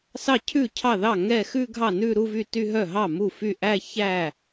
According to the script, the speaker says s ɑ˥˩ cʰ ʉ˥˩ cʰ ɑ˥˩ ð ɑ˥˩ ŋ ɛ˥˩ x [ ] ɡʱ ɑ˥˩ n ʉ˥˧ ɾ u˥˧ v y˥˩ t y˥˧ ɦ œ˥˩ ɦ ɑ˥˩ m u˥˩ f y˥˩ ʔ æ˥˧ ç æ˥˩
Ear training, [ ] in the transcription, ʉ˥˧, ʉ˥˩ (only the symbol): ʉ˥˧